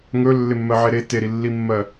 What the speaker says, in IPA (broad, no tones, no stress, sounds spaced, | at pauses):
ŋ ɵ lː ɪ mː ɜ ʕ e ɾ e t e ɾ i lː i mː ɜ